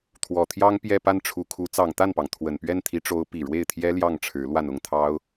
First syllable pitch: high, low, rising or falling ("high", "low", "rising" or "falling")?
low